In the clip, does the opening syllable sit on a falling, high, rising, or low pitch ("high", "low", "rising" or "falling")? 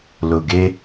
low